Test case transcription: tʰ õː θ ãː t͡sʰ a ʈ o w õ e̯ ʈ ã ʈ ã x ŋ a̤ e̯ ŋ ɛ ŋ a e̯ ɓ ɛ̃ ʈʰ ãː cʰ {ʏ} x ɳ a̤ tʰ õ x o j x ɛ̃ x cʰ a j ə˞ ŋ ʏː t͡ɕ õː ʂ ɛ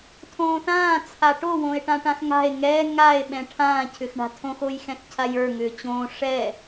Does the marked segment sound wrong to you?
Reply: no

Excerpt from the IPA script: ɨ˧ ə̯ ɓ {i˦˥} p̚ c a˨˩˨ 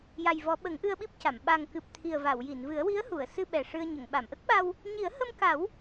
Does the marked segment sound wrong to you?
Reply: no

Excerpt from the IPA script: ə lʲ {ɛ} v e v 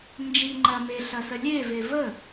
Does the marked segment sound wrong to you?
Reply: yes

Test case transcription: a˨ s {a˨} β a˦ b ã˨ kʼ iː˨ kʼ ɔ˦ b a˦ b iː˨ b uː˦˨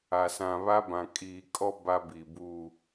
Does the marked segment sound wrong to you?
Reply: yes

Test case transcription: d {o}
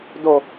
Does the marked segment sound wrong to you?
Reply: no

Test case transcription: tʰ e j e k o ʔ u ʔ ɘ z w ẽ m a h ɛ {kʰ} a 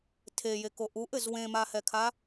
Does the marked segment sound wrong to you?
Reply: no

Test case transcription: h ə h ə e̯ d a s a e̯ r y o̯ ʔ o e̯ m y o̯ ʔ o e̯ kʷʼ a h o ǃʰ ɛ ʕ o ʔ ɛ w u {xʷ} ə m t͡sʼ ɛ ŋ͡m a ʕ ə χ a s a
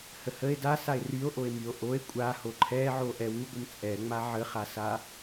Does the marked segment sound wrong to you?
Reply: yes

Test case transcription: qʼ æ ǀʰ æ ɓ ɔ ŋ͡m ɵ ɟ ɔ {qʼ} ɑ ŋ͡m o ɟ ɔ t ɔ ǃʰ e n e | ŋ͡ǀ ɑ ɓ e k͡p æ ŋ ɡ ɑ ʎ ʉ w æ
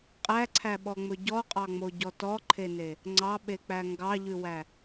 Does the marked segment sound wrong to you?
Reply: no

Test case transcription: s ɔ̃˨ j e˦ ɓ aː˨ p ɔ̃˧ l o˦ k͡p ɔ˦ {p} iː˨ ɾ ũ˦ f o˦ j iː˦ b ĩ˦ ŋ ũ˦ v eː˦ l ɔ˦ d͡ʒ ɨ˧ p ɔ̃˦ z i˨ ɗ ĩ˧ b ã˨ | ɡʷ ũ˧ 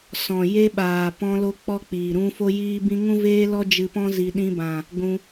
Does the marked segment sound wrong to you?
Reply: yes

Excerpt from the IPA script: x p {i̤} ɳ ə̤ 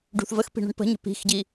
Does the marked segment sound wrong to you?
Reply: no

